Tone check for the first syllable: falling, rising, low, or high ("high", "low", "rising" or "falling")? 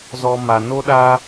high